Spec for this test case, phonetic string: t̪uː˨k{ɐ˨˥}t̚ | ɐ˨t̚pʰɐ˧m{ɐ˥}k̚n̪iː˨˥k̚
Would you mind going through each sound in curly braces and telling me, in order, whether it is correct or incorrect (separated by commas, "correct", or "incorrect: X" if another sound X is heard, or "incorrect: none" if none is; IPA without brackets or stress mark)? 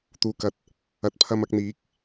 correct, incorrect: ɐ˧